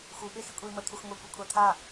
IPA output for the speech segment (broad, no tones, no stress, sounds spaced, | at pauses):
x u ɓ e x i kʷʼ e i̯ m ə t̪ʰ u x ŋʷ ɛ kʷ ə kʷʰ a t̪ʰ a